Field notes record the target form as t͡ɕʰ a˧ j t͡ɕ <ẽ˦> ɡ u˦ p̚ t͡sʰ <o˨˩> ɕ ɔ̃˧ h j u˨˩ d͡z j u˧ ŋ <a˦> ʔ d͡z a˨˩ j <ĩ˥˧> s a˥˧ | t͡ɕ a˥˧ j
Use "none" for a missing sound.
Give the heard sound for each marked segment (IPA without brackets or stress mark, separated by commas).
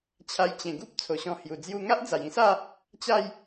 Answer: ẽ˨˩, o˨˩, a˦, ĩ˥˧